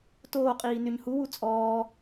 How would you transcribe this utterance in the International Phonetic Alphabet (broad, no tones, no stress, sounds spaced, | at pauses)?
t oː qʼ iː n y ɲ h u w u t͡sʼ ɔː